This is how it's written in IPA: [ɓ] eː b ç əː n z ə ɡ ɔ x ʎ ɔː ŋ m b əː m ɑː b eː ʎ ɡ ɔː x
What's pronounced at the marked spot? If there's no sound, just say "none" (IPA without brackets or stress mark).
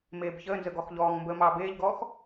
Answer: m